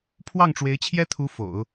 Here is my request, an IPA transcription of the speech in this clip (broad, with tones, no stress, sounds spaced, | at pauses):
pʰ w ɑ˥˩ ŋ ʈ͡ʂ w e˧˥ ɪ̯ t͡ɕʰ j ɛ˥ t̪ʰ u˧˥ f o̰˨˩˦ ʊ̯